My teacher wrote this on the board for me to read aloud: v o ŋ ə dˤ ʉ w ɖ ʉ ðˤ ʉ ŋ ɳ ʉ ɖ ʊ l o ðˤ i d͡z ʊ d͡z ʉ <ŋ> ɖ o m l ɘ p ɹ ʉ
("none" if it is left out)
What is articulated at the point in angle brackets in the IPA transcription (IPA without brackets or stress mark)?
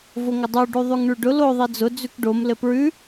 k